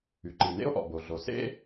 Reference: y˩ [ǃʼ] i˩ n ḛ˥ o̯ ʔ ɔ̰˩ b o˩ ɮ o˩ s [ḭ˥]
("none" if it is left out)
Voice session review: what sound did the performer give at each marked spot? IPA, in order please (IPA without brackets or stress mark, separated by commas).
ǃ, ḛ˥